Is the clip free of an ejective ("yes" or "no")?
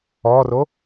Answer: yes